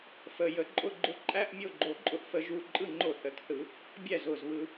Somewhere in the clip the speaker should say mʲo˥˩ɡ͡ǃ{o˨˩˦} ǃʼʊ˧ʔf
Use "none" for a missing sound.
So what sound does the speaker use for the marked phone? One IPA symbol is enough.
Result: o˨˩˦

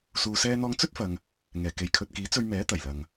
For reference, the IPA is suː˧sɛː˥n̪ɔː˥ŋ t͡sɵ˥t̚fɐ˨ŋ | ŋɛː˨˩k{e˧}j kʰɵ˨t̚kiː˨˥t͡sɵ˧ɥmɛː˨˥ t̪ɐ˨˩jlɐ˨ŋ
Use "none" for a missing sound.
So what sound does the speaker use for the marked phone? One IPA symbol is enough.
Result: e˨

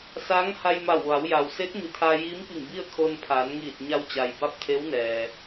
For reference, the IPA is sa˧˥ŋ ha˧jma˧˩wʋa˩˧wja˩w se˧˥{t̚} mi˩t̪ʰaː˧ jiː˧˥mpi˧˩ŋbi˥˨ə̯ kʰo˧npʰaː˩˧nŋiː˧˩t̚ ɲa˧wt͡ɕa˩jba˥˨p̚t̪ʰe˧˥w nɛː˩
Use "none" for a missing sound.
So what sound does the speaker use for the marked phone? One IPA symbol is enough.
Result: t̚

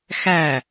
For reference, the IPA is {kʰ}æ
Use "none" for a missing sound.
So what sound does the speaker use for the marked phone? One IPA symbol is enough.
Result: x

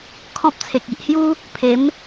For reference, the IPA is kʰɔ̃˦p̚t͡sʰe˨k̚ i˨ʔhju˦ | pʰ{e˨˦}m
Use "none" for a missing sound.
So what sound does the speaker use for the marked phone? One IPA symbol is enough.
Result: e˨˦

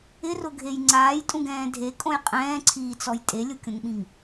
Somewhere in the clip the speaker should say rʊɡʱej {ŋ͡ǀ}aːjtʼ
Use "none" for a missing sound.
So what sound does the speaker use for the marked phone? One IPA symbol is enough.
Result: ŋ͡ǀ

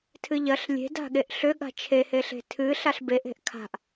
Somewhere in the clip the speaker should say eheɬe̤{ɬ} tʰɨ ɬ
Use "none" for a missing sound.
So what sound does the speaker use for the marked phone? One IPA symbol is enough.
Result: none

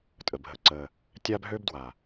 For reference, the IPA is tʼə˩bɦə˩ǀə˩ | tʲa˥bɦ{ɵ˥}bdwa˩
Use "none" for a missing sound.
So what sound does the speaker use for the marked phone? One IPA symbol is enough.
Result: ø˥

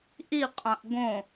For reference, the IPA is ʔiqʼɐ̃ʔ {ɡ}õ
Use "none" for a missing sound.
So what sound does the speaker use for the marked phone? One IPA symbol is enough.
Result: ɡ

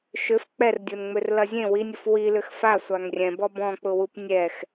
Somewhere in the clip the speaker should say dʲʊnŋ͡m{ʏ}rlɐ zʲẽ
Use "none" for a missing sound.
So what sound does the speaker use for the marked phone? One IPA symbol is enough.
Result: ʏ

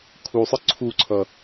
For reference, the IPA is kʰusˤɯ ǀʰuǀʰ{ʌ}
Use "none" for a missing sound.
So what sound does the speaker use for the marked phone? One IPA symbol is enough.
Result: ʌ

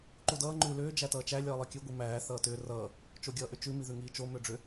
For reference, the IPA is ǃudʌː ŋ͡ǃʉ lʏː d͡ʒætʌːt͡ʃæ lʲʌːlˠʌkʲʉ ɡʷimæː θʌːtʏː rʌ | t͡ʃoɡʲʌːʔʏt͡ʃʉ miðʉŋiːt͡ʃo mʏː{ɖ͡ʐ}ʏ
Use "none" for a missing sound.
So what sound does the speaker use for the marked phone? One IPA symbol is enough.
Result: ɖ͡ʐ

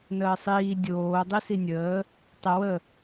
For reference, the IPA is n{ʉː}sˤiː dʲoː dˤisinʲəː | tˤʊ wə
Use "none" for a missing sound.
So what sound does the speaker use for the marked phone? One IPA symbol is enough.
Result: əː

